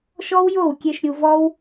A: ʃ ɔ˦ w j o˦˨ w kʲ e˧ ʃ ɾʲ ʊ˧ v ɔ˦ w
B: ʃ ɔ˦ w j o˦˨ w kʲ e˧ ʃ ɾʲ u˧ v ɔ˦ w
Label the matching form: B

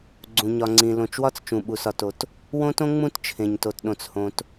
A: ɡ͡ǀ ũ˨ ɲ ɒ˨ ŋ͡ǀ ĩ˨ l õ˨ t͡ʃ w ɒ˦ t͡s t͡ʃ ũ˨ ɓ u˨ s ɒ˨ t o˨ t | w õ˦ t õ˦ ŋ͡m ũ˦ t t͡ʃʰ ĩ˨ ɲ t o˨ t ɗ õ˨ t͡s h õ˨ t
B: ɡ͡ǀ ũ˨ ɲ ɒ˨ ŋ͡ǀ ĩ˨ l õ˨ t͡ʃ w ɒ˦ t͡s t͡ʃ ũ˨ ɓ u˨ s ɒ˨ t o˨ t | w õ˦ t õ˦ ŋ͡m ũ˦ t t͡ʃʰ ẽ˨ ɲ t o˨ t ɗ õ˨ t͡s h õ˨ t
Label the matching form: B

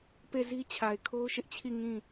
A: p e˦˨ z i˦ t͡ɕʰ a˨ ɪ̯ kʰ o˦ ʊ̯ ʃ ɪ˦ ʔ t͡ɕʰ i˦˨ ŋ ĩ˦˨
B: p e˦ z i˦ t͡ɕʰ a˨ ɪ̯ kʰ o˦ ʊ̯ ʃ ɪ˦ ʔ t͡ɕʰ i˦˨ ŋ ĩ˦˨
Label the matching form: A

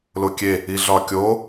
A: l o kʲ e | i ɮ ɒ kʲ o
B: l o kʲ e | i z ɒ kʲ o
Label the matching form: A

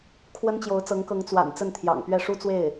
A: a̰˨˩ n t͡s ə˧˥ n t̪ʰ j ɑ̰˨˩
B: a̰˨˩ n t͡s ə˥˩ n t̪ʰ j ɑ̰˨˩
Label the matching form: B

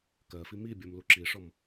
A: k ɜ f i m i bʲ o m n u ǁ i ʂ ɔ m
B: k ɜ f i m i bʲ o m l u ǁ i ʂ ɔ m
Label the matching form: B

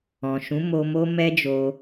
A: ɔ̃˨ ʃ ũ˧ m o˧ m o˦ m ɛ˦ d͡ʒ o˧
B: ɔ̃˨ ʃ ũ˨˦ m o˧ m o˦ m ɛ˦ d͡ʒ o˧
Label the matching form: B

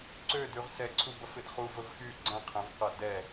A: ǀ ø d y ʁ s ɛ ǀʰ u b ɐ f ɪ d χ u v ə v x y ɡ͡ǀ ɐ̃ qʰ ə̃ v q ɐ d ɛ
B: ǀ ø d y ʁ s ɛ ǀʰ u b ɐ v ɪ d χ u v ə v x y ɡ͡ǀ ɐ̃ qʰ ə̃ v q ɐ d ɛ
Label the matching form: A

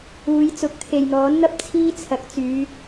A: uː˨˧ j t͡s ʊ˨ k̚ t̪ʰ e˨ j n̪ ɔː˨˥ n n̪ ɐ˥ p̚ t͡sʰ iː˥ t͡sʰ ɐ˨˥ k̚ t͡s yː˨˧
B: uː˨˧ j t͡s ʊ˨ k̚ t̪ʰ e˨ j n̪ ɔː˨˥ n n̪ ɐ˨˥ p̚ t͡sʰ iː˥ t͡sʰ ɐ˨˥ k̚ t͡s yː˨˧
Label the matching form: A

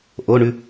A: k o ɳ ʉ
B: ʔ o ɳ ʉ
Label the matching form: B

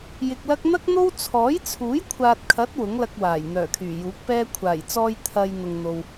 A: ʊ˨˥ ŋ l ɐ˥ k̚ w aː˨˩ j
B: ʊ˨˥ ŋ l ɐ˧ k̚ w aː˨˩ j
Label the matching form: B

